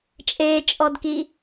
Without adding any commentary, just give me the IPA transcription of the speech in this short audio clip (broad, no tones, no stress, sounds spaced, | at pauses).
t͡ʃʼ eː t͡ʃʼ ɔ d k i